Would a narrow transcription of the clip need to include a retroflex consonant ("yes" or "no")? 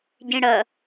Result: yes